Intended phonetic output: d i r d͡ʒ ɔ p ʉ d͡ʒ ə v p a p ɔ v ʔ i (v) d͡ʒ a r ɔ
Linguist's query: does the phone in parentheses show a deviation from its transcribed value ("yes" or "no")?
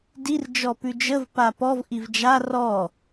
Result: no